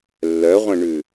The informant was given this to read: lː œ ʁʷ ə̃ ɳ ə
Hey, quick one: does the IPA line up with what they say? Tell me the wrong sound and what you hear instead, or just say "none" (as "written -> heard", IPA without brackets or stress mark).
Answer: ə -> ʉ